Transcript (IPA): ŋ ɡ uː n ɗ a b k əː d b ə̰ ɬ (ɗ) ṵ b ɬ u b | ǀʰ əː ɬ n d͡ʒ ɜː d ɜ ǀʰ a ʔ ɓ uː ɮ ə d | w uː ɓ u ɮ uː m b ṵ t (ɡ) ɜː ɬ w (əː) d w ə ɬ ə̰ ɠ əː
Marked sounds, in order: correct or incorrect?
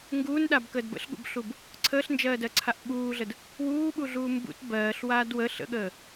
incorrect: ɠ, incorrect: b, incorrect: aː

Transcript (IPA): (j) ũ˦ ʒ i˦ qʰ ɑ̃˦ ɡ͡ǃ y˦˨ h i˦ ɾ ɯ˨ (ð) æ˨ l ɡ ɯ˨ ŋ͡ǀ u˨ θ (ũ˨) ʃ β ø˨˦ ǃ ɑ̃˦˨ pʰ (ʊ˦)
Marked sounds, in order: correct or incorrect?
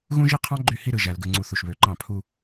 incorrect: ɣ, incorrect: ʒ, incorrect: u˨, incorrect: u˦

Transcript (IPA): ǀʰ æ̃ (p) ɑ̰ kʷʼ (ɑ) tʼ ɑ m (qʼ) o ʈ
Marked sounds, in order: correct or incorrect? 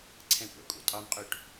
incorrect: kʷ, incorrect: ɑ̰, correct

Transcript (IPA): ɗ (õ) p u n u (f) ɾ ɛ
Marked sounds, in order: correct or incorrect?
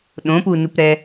correct, incorrect: p

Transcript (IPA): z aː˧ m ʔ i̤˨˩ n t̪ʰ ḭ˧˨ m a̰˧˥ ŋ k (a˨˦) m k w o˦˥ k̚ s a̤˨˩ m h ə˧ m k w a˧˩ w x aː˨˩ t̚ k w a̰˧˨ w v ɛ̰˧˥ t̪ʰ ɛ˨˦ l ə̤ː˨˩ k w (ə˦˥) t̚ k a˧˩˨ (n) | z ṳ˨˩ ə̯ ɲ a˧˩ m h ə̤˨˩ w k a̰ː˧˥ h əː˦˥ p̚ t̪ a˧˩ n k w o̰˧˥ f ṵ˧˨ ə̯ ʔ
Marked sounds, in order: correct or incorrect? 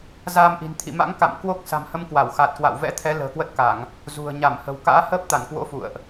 incorrect: a̰˧˨, correct, incorrect: ŋ

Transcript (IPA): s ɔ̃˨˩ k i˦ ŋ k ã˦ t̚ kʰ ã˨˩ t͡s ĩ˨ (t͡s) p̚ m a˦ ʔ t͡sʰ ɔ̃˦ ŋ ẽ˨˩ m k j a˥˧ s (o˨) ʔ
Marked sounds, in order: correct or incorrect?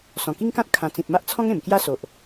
incorrect: none, correct

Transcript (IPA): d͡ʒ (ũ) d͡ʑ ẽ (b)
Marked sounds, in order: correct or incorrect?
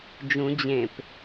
correct, incorrect: p

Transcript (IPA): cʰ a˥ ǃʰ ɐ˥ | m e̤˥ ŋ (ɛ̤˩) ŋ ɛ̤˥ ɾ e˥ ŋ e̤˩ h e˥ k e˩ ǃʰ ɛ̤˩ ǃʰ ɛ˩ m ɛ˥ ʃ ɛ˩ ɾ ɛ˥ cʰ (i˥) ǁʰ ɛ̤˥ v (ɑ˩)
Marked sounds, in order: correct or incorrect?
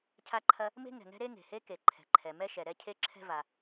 correct, incorrect: e˥, incorrect: a˩

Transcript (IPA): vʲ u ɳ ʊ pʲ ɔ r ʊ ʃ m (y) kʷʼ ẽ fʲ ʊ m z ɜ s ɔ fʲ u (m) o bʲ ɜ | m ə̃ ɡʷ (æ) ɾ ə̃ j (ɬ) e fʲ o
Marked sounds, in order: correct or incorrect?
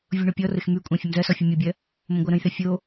correct, incorrect: mʲ, incorrect: ɜ, incorrect: θ

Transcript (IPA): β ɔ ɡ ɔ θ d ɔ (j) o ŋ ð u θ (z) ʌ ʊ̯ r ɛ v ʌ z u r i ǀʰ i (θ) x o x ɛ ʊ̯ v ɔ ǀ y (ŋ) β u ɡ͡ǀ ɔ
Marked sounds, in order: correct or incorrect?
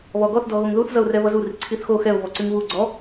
incorrect: ɣ, correct, correct, correct

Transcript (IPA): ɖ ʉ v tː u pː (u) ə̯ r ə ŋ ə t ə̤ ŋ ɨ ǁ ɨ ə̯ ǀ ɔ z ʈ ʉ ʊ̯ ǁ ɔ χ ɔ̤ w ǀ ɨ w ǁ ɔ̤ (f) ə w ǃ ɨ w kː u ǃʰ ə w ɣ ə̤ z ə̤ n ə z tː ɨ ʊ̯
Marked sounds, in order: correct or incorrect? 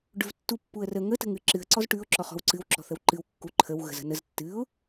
correct, incorrect: θ

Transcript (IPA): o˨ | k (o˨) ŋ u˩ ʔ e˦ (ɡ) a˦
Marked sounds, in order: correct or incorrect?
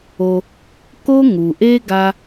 incorrect: o˦, correct

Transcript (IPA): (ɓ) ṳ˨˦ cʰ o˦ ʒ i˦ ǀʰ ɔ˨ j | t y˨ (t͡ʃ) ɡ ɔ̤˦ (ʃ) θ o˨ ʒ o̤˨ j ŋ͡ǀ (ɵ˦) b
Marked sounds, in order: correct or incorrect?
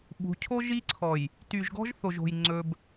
correct, incorrect: ʒ, incorrect: ʒ, correct

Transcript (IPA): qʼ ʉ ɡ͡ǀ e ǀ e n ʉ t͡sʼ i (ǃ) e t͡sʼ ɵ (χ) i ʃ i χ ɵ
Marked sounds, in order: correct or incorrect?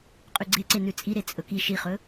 incorrect: ɾ, incorrect: k

